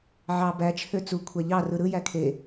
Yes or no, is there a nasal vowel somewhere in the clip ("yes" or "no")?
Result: no